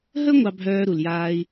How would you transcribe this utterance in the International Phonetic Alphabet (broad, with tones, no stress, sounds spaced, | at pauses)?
ɦ ə˥ ŋʷ ɑ˥ bʱ œː˥ ɾ u˩ l j aː˥ i̯